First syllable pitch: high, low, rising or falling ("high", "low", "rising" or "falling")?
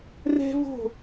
high